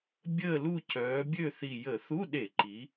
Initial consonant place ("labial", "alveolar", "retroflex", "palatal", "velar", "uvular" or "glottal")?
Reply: labial